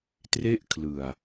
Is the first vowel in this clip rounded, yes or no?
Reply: no